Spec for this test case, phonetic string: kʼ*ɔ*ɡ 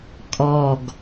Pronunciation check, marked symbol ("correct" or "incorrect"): correct